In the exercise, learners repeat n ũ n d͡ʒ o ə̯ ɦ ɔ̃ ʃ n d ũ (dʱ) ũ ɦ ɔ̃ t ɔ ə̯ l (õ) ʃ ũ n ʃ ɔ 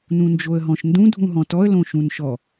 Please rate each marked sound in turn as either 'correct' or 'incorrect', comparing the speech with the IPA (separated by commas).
correct, correct